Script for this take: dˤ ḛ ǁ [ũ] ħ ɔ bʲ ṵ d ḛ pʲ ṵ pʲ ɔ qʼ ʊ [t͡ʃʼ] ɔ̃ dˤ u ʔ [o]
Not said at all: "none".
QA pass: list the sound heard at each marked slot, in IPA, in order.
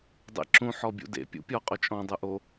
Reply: ũ, t͡ʃʼ, o

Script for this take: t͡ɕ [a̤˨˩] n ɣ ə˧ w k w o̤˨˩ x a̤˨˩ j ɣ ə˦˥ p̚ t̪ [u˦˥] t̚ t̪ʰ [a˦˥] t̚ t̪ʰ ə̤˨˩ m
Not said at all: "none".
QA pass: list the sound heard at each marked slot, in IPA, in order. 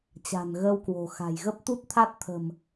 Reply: a̤˨˩, u˦˥, a˦˥

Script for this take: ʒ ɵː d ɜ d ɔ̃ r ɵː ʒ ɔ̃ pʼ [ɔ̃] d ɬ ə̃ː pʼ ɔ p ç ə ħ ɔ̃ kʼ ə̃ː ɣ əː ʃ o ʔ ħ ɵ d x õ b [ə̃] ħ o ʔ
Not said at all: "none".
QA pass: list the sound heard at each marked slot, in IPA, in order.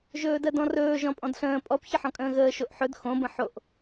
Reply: ɔ̃, ə̃

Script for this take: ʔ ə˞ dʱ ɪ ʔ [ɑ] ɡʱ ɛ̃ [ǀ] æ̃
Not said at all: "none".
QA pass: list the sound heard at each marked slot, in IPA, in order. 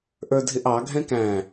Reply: ɑ, k

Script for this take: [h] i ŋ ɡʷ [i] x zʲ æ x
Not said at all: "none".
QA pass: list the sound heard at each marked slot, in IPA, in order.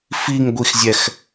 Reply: f, i

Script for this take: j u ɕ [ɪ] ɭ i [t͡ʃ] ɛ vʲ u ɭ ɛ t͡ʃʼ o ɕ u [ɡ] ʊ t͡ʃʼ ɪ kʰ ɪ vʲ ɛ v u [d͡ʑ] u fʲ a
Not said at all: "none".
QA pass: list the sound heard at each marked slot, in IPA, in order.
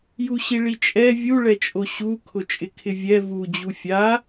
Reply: i, t͡ʃʼ, kʰ, d͡ʑ

